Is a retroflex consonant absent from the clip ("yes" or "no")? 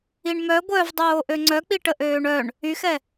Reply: no